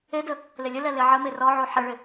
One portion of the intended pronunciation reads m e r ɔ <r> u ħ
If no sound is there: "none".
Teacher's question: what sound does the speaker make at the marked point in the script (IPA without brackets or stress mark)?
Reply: ʕ